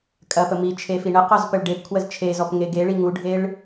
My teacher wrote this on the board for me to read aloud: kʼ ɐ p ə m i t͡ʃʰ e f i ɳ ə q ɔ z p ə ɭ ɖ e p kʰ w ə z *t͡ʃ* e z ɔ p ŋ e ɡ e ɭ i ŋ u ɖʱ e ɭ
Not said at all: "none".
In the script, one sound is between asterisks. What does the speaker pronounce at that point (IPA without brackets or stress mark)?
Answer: t͡ʃʰ